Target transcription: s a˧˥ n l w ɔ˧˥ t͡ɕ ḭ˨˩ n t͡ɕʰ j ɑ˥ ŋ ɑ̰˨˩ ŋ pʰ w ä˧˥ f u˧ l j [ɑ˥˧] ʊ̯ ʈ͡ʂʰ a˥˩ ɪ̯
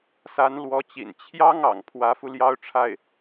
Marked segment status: incorrect: ɑ˥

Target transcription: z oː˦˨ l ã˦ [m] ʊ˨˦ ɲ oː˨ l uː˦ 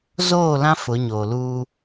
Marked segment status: incorrect: f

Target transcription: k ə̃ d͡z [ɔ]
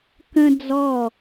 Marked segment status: correct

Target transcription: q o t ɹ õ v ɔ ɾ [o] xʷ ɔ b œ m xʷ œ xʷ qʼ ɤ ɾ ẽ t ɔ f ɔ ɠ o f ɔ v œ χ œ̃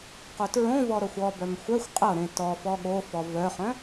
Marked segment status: incorrect: ɤ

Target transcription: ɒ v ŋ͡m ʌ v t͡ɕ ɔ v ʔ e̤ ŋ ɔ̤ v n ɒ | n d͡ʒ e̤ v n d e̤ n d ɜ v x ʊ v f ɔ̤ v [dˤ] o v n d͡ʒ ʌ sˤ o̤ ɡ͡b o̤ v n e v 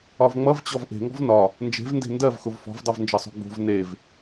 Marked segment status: correct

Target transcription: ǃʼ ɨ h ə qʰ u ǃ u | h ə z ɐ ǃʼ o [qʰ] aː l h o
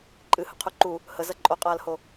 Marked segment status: incorrect: qʼ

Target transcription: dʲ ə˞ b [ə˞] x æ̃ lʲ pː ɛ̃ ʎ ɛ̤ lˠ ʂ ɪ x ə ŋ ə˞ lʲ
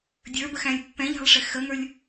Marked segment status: incorrect: ə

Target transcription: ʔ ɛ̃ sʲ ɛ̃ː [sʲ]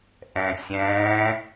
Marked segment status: incorrect: none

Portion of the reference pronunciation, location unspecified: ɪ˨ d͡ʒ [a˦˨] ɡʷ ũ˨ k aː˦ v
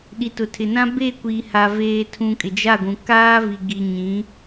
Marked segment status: correct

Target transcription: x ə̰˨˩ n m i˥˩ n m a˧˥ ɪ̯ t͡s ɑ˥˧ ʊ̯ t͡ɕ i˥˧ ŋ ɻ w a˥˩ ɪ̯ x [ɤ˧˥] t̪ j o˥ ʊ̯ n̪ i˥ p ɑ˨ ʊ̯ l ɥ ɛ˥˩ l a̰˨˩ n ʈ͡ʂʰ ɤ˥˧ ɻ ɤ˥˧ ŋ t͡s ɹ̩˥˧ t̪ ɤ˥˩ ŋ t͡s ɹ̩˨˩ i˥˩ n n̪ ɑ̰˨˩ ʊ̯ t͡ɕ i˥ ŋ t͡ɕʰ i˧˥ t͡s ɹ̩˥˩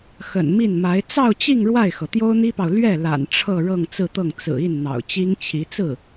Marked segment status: incorrect: ɤ˩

